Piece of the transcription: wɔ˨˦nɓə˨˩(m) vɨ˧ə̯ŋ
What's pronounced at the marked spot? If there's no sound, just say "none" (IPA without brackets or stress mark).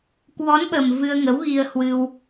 m